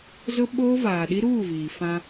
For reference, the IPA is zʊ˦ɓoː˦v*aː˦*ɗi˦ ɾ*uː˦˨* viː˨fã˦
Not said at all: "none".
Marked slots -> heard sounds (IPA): aː˨, uː˦˨

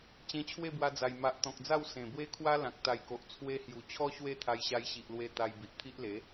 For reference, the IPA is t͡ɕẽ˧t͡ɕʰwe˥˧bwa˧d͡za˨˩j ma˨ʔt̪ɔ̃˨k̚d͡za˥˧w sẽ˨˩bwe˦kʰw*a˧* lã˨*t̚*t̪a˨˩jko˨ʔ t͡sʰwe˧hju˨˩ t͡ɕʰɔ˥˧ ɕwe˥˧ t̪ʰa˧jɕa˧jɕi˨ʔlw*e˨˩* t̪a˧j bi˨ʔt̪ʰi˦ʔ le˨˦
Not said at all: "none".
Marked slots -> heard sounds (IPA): a˦, k̚, e˧

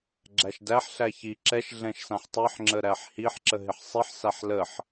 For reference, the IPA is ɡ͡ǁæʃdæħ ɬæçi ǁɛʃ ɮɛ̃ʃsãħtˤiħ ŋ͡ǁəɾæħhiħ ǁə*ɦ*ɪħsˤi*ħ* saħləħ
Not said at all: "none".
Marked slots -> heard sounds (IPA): ɦ, ħ

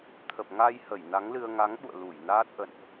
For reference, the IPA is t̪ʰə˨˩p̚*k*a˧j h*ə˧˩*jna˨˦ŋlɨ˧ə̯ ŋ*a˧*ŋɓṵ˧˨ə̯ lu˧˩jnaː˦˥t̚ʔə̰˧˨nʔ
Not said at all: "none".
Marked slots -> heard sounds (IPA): ŋ, ə˧˩, a˨˦

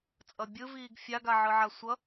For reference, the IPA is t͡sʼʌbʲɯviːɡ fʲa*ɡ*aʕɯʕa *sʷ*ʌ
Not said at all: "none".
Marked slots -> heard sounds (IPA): ɡ, sʷ

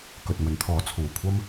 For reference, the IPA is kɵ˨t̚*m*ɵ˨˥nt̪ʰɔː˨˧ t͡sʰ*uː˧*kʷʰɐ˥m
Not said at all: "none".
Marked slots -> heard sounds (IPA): m, uː˨˩

